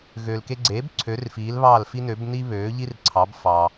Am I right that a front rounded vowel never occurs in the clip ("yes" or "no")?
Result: no